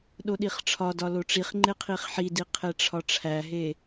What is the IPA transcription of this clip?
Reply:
ɗoɗiχʈ͡ʂʰɒdɒ loʈ͡ʂiχŋ͡ǃe qʰiχħidi qʰeʈ͡ʂʰɒʈ͡ʂʰæɦe

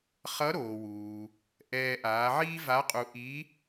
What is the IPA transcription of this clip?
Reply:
χʌ˧˥ɾoː˩wuː˩ | ʔɛː˧ ʔaː˩˧ʕiː˥va˧˥qʼu˧ ʔi˧˥

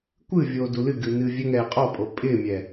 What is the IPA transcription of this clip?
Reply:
kʷɨ vʲoːdulɨɡɨ nɨːvʲɛŋɛː qʼɔpʼo pʼɪːmʲɛ

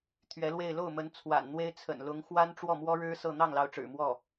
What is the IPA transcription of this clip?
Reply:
t̪ʰɥɛ˧˥lwe˥˧ɪ̯ lo˥˩ʊ̯mə˧˥n t͡sʰwa̰˨˩nn̪we˥ɪ̯ t͡sʰə̰˨˩nlʊ˧˥ŋxwa˥n ʈ͡ʂwɔ˥˩mwɔ˥ɻɻ̩˥ sɤ˥˧ n̪ɑ˥˩ŋlɑ˧˥ʊ̯ ʈ͡ʂɻ̩˨˩mwɔ˥˩

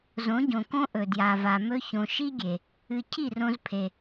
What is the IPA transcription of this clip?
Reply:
zõ˨˦ɟõ˨kõ˦ ʔɵ˨dja˨va˨ mɵ˧çõ˨ʃi˦ɡʲe˨ | ɨ˧ cʰi˦˨rõ˧zpʰe˨

